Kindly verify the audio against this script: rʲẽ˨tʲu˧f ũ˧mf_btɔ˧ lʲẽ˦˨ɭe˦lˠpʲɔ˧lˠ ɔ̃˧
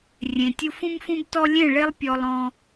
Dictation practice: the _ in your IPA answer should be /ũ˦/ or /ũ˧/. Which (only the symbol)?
ũ˧